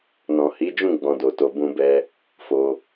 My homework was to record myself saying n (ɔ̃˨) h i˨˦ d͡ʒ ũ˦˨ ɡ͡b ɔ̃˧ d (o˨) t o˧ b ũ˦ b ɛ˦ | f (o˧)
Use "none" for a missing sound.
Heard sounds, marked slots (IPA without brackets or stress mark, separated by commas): ɔ̃˨, o˨, o˧